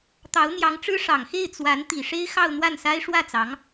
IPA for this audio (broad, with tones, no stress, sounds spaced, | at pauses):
t̪ ɑ˧˥ ʊ̯ n̪ j ɑ˧˥ ŋ ʈ͡ʂ ɻ̩˥ ʂ ɑ˨˩ ŋ x e˥˩ ɪ̯ t͡s w a˧˥ n t̪ i˨˩ ʂ e˥ ɪ̯ x ɑ˥˧ ʊ̯ n̪ w a˥˩ n s a˥ ɪ̯ ʂ w ä˥˩ t͡s ɑ˧˥ ŋ